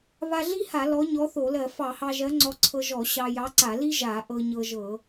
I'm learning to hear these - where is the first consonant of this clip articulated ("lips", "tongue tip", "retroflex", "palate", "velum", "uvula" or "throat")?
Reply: lips